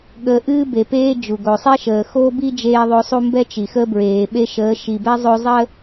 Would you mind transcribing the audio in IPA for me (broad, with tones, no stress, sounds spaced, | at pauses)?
ɠ ə˨ ʔ ɨː˦ b e˨ p eː˦ d͡ʒ u˨ ɡ o˨ sˤ e˦ ʃ əː˨ x oː˦ b i˦ d͡ʒ eː˦ ðˤ o˦ sˤ u˦ m b ɛ˦ t͡ʃ i˨ x ə˦ b ɹ eː˨ ɓ e˦ ʃ əː˨˦ ʃ i˨ b ɛ˦ zˤ o˦ zˤ ə˦